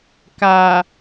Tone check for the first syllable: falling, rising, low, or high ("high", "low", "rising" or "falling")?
low